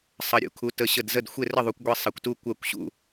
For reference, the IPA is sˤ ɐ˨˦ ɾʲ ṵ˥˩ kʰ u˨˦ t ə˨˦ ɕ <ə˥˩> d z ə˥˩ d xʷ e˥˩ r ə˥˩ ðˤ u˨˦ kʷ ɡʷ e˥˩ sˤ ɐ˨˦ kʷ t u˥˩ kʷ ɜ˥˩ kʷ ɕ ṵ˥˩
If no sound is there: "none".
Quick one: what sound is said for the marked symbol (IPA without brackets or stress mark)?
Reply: ə˥˩